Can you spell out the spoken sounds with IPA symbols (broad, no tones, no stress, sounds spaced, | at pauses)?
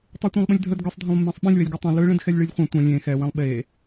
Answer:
tˤ i tʷ ɛ̃ lˠ ɓ ə̃ lʲ dʱ ə d ɡ ɯ sˤ dʱ ə̃ lˠ mː ẽ sˤ ɓ ĩ lʲ w ɛ lʲ ɡ ɯ tˤ ɛ̃ l ɯ ɭ ẽ d x ɛ lʲ ɭ ɨ lʲ χʷ ɛ̃ tʷ ɐ̃ lʲ ẽ x ɛ w ẽ lˠ ɓ e